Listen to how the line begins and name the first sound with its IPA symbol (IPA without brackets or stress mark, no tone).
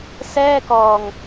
s